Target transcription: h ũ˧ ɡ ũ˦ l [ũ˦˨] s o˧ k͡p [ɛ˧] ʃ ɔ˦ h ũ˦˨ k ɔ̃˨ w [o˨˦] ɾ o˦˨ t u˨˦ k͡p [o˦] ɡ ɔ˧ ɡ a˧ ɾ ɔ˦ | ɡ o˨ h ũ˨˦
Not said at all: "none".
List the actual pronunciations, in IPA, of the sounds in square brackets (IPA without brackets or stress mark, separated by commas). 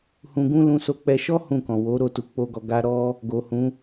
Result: ũ˧, ɛ˧, o˨˦, o˦